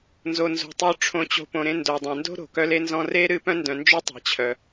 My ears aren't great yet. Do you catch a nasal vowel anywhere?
yes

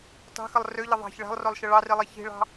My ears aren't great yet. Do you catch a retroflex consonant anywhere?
yes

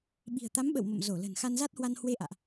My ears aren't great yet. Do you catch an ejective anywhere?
no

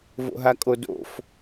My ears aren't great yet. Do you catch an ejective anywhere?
yes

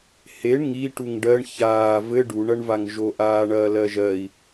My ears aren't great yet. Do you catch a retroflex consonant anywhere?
yes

